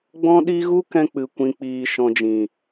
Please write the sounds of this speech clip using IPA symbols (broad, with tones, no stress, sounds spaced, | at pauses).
ɡ͡b ɔ̃˦ ɗ i˦ ɣ u˦ k ɛ̃˧ k͡p ɨ˧ kʷ ĩ˧ k͡p iː˧ ʃ ɔ̃˨ d͡ʒ ĩ˨